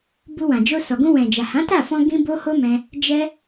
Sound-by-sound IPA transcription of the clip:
b u˧ w ã˨ d͡ʒ o˧ s ɔ˨ ɡ ũ˧ w ɛ̃˨ d͡ʒ a˨ h ã˨˦ t a˦˨ f ɔ̃˧ ɡ ĩ˦ b o˦ h o˦ m ɛ̃˧ | d͡ʒ ɛ˦

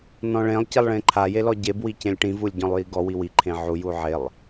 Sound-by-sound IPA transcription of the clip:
n ɔ̃ ɭ ẽ lˠ c i lˠ ɭ ẽ ǃʰ a j e l ɔ ɟ e b w i c ẽ lʲ ʈ ĩ v u lʲ ɟ ɔ̃ lˠ j i ɡ ɔ w i w i ǃʰ ẽ ʕ u j u ʕ e lˠ

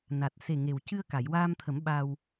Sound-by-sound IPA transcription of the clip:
n a˨˩ t̚ s e˨˩ ŋ e˨˩ w c ɨ˧ ə̯ k a˨˩˨ j w aː˧ m t̪ʰ ə˨˩˦ m ɓ a˧ w

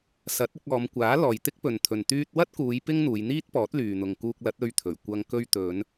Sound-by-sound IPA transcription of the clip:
s ɐ˨˥ t̚ ɪ˧ k̚ ɔː˨˧ m kʷ aː˨˥ l ɔː˨ j t̪ ɪ˥ k̚ p ɵ˨ n t̪ʰ ɵ˨ n t̪ yː˧ t̚ w ɐ˥ t̚ k uː˨˧ j p ɪ˥ ŋ n̪ uː˨˧ j n̪ iː˥ t̚ p ɔː˨˥ t̚ l yː˨ n̪ ʊ˨ ŋ k uː˧ k̚ l ɐ˨˥ t̚ ɵ˧ ɥ t̪ʰ ɵ˨˩ ɥ kʷ ɐ˧ ŋ k ɵ˧ ɥ t̪ ɵ˨˧ n

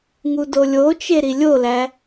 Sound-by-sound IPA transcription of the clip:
ŋ u d o lʲ o t͡ʃ e ɾ i lʲ o l æ

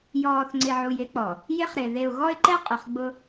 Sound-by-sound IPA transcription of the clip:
j ɔː˨ θ ŋ͡ǀ ɪ˨ ʕ u˨ j ɪ˦ k͡p ɔ˨ | j ɪ˦ χ ɾ ɪ˨ ð e˨ ʊ̯ ɣ ɔ˦ ɪ̯ ǃ ɛ˦ qʼ ʊ˨ χ ɡ͡b ʊ˦

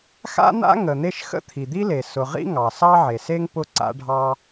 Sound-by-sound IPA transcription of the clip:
x a̰˥ n̪ a̰˥ ŋ ə˩ n̪ e˥ ʃ x ə̰˥ t̪ʰ i˩ d̪ i˥ l e˩ s ʊ˩ ʁ ḭ˥ ŋ ɑ˩ s ɑ˥ ʕ e˩ s e˥ ŋ p ʊ˥ ǀ a̰˥ ɖʱ ɑ˥

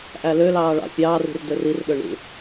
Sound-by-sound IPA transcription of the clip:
ʔ æ l ø l ɑː ɭ ɑ̰ fʲ ɑː r i̤ r d ø r i r ɗ ø ɳ ṵ

